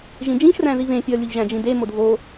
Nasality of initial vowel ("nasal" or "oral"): nasal